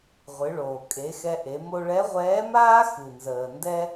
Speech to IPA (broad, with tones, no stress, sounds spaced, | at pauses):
ʁʷ ɨ˩˧ ɭ oː˩ kʼ e˩˧ x ɛ˧ ʔ e˩˧ m o˧ ɭ ɛ˧˥ ʁʷ ɛː˧˥ m aː˥ x ɨ˩ n z əː˩ n d ɛ˥